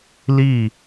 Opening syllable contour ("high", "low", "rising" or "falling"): falling